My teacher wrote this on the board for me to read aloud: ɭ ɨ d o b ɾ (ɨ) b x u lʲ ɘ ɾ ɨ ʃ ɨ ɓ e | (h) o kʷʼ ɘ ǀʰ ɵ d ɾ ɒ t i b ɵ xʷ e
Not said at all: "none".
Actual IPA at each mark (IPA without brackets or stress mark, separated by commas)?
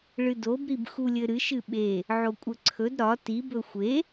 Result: i, ʕ